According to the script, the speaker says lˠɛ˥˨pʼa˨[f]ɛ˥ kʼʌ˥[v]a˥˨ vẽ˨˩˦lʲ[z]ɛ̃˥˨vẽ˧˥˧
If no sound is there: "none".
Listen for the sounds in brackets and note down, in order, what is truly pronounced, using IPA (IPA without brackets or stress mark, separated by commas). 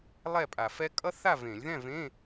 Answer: f, θ, ð